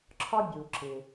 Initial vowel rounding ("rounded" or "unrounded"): rounded